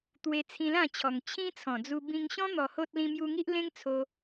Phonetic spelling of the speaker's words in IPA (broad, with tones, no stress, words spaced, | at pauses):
t̪we˧t͡sʰĩ˧lã˥˧t͡ɕʰɔ˨˩ŋ t͡ɕʰĩ˦t͡sʰɔ̃˨˩d͡zu˧ bĩ˧ŋɕɔ̃˦ n̪ɔ˧ho˦t̚ lĩ˧mju˧ŋi˦ʔ lẽ˦ŋt͡sʰo˧